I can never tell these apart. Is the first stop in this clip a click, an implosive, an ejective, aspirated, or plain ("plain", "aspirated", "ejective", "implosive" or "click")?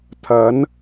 aspirated